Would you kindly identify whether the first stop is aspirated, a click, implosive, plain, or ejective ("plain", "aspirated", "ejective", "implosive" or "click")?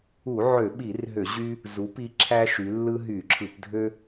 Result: implosive